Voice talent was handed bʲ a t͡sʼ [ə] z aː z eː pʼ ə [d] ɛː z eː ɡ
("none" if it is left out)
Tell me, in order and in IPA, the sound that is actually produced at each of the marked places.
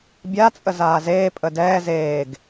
ə, d

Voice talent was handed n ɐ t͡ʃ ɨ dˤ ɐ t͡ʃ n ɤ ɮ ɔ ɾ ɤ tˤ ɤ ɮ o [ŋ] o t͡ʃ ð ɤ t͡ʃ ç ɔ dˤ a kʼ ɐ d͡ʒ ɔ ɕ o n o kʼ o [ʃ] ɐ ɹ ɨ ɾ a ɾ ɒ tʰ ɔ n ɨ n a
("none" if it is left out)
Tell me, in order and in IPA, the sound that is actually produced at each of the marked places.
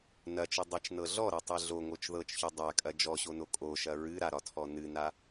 ŋ, ʃ

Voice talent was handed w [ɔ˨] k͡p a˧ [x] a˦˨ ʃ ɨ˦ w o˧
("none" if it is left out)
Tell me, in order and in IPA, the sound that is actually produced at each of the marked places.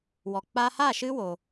ɔ˨, h

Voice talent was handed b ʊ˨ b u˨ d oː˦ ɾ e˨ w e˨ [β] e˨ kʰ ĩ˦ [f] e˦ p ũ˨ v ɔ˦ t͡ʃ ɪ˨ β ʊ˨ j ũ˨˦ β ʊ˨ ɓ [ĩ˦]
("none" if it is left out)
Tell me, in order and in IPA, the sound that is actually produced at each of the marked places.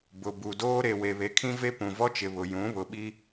β, v, i˦

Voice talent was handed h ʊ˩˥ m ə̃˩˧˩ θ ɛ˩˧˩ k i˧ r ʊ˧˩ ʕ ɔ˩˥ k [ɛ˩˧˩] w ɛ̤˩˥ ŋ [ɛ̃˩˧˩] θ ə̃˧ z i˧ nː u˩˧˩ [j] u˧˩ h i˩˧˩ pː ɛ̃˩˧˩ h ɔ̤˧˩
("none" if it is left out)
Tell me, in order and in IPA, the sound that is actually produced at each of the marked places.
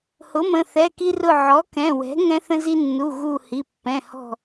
ɛ̃˩˧˩, ɛ̃˧, ɣ

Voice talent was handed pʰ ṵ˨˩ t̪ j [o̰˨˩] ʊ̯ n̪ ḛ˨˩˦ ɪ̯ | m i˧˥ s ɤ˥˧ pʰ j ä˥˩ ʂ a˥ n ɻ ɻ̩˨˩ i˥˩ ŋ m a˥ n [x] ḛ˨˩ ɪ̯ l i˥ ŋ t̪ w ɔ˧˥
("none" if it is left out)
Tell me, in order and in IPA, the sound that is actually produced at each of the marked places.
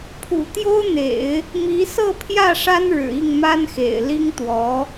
o˥, x

